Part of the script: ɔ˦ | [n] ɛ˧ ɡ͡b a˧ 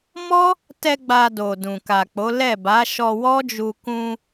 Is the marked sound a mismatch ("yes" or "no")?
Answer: yes